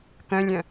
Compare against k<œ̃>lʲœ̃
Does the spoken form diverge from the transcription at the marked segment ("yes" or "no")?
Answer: no